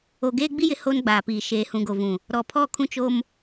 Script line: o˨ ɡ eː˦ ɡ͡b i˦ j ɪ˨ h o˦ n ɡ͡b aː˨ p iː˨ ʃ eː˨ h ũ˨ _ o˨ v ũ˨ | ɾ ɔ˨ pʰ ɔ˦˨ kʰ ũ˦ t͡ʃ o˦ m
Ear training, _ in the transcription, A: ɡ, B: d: A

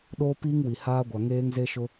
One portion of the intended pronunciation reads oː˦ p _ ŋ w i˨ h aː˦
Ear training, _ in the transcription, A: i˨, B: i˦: B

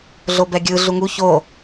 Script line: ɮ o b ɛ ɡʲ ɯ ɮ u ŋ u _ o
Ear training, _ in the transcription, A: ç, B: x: A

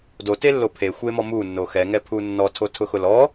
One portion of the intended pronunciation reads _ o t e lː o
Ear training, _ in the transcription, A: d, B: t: A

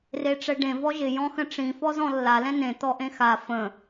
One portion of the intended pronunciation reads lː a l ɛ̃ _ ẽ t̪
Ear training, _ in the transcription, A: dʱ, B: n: B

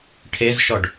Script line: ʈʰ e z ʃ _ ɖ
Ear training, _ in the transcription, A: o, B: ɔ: B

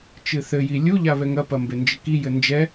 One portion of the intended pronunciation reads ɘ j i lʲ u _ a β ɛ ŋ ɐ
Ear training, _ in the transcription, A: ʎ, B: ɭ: A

